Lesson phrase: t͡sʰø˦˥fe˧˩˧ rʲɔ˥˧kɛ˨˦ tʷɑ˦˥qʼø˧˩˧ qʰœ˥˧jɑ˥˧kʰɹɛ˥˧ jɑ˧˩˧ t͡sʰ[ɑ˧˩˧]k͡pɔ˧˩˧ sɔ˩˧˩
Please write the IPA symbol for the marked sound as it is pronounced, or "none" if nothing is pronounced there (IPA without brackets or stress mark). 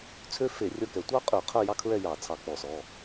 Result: ɑ˧˩˧